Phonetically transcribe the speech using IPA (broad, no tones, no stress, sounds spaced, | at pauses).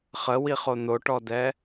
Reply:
χ ə w i χ o n̪ o ʈ ɔ d ɛ